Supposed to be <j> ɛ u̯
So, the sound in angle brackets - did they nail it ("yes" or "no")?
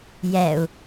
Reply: yes